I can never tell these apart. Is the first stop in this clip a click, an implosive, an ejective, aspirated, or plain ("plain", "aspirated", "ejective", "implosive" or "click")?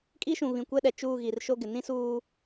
ejective